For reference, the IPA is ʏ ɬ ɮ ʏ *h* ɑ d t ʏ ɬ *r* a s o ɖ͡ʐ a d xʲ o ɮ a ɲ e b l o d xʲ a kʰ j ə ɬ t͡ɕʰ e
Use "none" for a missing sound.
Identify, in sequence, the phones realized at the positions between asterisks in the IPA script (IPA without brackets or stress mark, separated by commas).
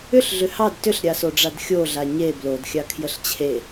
h, ɾʲ